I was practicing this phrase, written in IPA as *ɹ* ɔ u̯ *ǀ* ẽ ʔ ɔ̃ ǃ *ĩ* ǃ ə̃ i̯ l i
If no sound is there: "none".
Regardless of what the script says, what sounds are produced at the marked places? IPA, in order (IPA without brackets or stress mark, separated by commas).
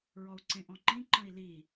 ɹ, ǀ, ĩ